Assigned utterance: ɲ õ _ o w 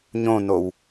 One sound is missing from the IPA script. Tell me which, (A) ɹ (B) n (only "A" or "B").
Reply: B